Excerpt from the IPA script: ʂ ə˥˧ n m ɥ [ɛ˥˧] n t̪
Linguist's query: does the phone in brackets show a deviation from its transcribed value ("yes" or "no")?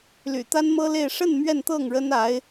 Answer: no